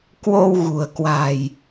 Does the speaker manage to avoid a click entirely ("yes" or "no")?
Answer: yes